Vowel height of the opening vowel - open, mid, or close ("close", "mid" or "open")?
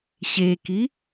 mid